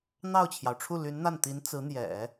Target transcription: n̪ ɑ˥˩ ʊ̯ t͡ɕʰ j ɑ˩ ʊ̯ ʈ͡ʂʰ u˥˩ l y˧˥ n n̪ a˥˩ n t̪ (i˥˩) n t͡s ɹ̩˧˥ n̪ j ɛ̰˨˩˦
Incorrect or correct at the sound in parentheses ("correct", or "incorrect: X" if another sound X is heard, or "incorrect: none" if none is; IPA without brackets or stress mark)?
incorrect: i˧˥